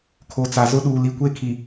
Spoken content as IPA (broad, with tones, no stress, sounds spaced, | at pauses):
kʰ o˨ t͡s a˨ z ʊ˦ ɗ uː˨ l i˨ kʷ e˦ kʰ i˨